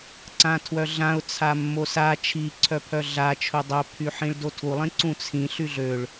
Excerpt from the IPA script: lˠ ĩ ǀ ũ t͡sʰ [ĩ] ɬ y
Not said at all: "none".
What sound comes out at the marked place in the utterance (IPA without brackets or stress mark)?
ĩ